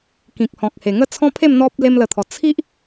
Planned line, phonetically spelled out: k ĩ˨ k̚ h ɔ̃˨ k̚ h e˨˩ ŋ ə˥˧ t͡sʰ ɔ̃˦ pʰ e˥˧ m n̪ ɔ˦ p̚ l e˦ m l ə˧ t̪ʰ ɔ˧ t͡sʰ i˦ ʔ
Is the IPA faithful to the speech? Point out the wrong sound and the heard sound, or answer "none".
none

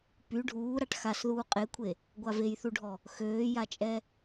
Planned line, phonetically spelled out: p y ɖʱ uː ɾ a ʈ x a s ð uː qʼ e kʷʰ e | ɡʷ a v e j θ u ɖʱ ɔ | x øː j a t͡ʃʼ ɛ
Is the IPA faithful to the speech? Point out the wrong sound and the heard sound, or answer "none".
none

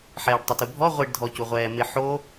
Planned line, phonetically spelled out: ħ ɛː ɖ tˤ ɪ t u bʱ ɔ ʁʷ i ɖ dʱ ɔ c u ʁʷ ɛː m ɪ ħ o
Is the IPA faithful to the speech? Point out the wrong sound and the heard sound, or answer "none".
none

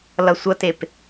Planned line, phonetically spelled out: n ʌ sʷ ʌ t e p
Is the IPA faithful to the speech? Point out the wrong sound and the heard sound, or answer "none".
n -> l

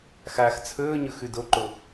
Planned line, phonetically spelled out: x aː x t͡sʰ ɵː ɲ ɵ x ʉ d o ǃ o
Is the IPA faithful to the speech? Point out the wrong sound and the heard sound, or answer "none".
none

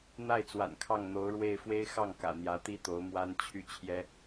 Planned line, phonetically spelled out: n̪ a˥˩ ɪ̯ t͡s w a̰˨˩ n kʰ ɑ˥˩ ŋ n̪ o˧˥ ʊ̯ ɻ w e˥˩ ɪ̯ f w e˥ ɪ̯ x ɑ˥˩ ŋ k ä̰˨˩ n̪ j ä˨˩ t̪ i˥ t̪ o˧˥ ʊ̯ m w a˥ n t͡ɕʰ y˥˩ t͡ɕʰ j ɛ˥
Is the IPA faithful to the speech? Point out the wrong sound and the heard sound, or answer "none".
ä˨˩ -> ä˧˥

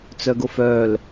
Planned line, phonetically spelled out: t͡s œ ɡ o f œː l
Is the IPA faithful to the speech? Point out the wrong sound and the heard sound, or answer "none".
none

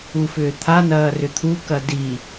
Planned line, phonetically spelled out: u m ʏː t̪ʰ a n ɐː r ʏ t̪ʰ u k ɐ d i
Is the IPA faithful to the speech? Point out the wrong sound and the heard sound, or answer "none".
m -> f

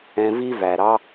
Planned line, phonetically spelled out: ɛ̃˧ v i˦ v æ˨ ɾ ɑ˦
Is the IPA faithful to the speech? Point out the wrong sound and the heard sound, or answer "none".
none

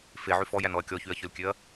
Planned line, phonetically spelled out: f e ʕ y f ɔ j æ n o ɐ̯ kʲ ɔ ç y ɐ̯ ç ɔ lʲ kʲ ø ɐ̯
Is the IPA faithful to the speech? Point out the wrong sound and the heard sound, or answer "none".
o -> ɔ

